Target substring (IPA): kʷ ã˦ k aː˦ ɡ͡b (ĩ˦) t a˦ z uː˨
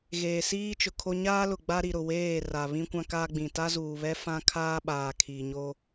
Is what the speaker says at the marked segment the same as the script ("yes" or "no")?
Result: no